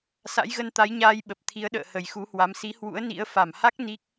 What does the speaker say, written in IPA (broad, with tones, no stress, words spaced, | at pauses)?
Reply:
sa̰˧˥jɣə˧nt̪a˨˦jɲaː˧j ɓə˨˩p̚ t̪ʰi˨˦ə̯ ɗə̰ː˧˨ hə˨˩jxu˨˦hwa˨˦m si˨˦hwṵ˧˥ə̯nḭ˧˥ə̯ fa˧˩mha˦˥k̚ ni˦˥k̚